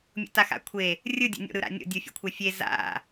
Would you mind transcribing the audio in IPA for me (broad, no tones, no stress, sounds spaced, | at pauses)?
mʲ o̰ t a x a̰ kʷʰ e | rʲ ɯ dʲ o̰ nʲ o̰ ɾ ɯ ɾ a̰ nʲ o̰ dʲ u fʲ ṵ kʷʰ ɛ fʲ e z a̰